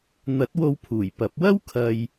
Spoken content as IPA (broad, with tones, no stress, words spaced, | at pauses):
n̪ɐ˨˥t̚wo˧w pʰuː˨˩jpɐ˨˥p̚ wɐ˥wkʰɐ˨j